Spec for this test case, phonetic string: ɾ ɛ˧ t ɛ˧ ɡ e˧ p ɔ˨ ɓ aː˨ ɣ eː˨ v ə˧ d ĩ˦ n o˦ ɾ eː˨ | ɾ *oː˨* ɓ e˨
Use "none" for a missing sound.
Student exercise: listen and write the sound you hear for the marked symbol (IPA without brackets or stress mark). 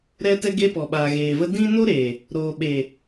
oː˨